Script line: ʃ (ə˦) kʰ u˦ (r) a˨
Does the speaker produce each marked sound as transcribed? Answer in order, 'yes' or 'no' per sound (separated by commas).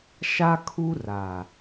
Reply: no, yes